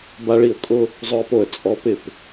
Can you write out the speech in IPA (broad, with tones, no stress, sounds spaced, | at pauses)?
b a˧ ɭ i˧˩ ə̯ kʼ ʊ˧ | zˤ ʊ˧ ə̯ p o˧˩ ə̯ t͡sʼ ɔ˩˧ p ɪ˧˩ p